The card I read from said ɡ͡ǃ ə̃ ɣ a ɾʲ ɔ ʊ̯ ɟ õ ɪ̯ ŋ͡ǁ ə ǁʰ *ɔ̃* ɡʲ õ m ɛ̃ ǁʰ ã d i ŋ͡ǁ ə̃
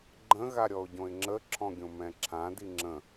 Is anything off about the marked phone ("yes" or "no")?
no